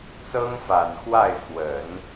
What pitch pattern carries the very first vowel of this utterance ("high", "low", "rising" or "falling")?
high